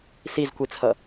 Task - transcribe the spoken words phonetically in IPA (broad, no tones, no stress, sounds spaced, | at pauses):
s i z kʷ i t͡sʰ ʌ